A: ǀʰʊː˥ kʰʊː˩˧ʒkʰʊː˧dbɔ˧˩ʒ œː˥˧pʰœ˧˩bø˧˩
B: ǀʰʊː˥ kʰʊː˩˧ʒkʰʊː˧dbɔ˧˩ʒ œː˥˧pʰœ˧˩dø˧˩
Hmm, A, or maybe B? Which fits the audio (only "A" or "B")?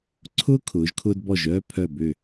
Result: A